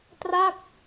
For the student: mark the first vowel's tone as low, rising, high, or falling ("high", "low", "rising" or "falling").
falling